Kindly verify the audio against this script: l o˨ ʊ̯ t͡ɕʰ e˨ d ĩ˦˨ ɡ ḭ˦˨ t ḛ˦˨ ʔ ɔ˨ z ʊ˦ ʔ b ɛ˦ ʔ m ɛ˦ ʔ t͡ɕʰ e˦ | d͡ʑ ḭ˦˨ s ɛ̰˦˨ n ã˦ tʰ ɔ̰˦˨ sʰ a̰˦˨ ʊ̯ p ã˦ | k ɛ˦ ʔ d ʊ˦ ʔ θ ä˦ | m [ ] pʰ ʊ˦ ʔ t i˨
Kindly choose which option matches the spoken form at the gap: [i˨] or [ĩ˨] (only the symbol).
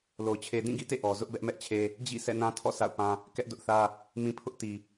ĩ˨